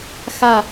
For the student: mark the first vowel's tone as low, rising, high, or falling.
falling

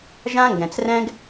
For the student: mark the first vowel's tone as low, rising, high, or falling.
high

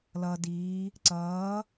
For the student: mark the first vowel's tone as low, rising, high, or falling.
low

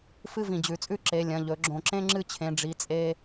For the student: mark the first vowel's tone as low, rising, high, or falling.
high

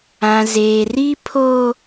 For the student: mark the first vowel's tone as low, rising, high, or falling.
low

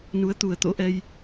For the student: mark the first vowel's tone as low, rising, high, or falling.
rising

